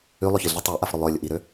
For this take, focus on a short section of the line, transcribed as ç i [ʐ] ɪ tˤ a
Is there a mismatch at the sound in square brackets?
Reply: yes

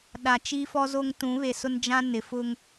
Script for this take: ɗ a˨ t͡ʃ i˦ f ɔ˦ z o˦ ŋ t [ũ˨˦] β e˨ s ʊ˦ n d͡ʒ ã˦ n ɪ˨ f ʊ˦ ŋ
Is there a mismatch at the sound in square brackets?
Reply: no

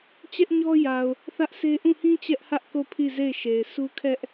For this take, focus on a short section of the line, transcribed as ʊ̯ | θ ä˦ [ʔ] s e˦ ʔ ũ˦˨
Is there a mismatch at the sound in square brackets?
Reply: no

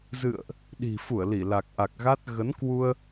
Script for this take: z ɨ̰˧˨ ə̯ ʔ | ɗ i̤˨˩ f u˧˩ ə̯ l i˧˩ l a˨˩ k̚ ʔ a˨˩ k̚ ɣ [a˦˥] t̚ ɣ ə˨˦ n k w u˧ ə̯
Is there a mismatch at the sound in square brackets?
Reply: no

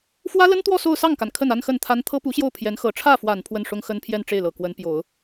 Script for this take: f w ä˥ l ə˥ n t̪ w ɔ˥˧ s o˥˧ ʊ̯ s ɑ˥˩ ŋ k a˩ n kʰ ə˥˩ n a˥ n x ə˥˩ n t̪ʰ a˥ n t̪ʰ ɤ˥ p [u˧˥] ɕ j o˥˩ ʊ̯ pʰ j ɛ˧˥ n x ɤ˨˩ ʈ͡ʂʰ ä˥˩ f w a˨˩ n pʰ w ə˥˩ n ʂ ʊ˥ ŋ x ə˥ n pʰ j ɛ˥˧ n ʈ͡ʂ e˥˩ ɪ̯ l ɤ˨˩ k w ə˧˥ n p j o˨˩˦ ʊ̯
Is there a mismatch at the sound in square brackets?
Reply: no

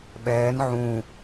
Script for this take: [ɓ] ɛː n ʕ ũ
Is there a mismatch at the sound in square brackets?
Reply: no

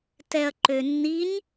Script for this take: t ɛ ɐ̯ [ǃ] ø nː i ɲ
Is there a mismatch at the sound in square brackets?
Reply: no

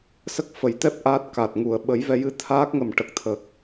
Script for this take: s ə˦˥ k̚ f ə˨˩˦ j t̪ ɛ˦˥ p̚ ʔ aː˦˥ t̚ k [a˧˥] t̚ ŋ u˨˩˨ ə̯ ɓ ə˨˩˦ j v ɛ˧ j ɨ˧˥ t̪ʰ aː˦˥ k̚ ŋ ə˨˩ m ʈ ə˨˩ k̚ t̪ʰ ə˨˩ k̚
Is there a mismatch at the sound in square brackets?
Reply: yes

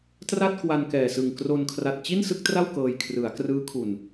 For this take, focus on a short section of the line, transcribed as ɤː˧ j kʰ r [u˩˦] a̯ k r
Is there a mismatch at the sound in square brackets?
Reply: yes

